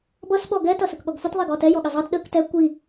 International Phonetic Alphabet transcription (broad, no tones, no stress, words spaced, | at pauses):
bʌs ɓɔɡɛ tʌsəkɠɔɡfʊt ðˤiɡɔtɛ jɔɠɪzˤʌt ɗək tɛ kʷi